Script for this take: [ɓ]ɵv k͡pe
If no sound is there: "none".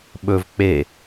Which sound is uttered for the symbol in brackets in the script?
ɓ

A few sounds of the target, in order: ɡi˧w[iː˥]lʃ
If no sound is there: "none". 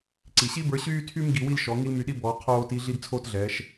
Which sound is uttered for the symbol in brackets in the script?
i˥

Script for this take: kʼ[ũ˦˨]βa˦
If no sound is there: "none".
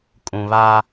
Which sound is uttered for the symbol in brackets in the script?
ũ˨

